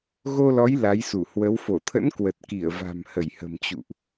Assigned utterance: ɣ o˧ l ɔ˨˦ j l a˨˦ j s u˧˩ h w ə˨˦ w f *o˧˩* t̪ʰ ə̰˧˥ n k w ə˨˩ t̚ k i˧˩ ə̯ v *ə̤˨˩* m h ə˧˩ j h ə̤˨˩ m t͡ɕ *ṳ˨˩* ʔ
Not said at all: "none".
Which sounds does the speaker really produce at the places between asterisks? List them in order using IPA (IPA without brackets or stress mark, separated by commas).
o˧˩, a̤˨˩, ṵ˧˨